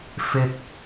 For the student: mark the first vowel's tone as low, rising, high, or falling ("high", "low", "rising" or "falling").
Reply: high